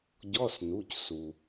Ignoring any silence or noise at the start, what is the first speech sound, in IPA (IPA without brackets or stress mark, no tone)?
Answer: ɟ